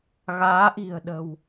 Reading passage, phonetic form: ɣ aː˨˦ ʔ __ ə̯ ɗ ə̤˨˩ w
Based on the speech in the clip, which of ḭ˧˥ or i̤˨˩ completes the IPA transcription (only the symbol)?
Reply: i̤˨˩